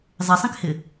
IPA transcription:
zˤ ɪ sˤ ẽ k h ɪ

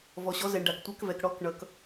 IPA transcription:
v ɔ˨ ɕ ɔ˧˥ z ɛ˨ ɳ ɖ a˨ k tʷ ɜ˧˥ k v ɛ˨ k ɽ ɔ˧˥ k ɳ ʌ˨ k

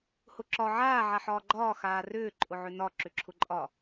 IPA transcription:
h ʊ ǁ ɒ ʕ aː ʕ a ħ ɒː ɡ͡ǃ ɒː x aː r ʏː ǃʼ ʊ ʕ ʏ n ɒ ǁ ʏ ǁʰ ʊ ǃʼ ɒ

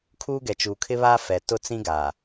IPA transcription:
kʰ uː˦ ɡ ɛ˨ t͡ʃ u˨ kʰ ɪ˦ β aː˦ f ɛ˨ t ʊ˦ t͡s ĩ˦ ɡ a˨

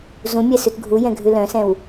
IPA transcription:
z ũ mʲ ɛ s ʉ t ɡʱ u j ɛ̃ ɡʱ ʉ l œ̃ s ɛ̃ w

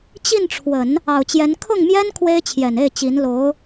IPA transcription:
t͡ɕ i˥˩ n ʈ͡ʂʰ w ə˨˩˦ n | ɑ˨˩ ʊ̯ t͡ɕ j ɛ˧˥ n kʰ ʊ˥˩ ŋ m j ɛ˥ n kʰ w e˥ ɪ̯ t͡ɕʰ j ɛ˨˩ n e˥˩ ɪ̯ t͡ɕ i˧˥ n l o˧˥ ʊ̯

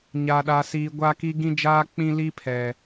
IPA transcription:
ɲ a˨ ɗ a˨ s iː˨ ɡʷ a˦ k i˦ ɡ ĩ˦ d͡ʒ aː˦ k͡p ĩ˦ l i˦ pʰ ɛ˨

